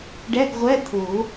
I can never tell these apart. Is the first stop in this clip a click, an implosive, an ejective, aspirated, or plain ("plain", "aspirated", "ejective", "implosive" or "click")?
plain